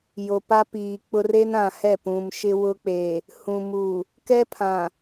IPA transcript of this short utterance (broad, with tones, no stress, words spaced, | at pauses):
jo˨pa˦piː˨k͡pʊ˦r e˦nã˨ hɛ˦˨pũ˨m ʃɪ˦wʊ˦k͡pe˨ | hũ˨mu˨ | kɛ˦pʰã˨